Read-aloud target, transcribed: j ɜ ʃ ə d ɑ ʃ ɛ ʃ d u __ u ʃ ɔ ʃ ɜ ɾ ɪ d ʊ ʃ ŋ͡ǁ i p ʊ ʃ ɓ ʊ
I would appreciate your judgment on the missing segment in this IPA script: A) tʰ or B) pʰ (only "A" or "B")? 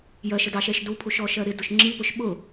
B